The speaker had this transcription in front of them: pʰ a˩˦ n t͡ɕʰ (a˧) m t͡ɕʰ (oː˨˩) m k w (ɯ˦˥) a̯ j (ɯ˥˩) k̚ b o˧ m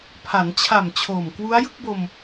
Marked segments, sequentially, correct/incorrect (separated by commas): incorrect, correct, incorrect, correct